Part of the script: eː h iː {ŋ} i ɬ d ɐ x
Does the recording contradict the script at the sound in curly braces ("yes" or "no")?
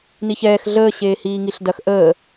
no